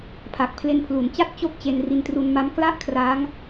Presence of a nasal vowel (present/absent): absent